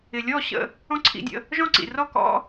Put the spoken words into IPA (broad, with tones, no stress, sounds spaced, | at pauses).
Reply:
ɪ˩ lʲ ɔ˥˩ ɕ ə̰˥˩ | ɔ̃˥ ǀʰ ḭ˧ dʲ ə̰˧ | ʒ ɔ̃˥˩ ǀ ḭ˩ r ɔ˥˩ k ɔ̰˥